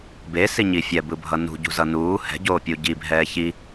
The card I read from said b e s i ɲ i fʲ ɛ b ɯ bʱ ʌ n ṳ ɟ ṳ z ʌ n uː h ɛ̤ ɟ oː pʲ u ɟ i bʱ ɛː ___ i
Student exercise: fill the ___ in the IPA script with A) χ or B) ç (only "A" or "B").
B